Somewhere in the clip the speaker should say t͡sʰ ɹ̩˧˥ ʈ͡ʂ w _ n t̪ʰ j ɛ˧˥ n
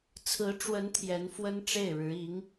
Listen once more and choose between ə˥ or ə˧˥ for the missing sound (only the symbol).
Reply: ə˧˥